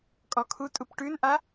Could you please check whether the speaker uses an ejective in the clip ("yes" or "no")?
yes